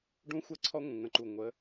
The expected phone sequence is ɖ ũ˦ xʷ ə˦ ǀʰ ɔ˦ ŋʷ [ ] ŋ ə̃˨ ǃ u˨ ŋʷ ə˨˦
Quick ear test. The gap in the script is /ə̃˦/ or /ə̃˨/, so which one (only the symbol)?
ə̃˨